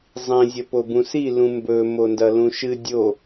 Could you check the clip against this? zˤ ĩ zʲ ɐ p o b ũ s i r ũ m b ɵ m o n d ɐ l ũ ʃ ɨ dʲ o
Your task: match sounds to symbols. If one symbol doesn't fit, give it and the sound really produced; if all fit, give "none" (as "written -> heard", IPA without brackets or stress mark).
r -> l